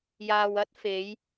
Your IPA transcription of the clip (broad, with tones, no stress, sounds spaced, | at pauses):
j aː˨ w ɐ˥ t̚ f e˨˧ j